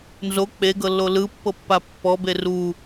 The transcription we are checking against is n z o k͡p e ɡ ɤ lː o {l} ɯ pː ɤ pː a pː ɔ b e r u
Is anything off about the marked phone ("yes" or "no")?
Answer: no